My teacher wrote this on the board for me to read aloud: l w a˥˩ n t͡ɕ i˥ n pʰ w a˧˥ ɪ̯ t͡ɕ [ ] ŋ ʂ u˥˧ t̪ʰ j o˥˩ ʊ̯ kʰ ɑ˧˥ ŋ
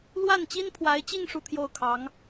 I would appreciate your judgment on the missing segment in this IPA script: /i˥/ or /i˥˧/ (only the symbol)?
i˥˧